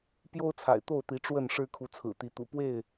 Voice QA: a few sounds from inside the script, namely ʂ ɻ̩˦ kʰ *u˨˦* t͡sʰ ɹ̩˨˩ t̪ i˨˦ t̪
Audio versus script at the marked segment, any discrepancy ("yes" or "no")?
no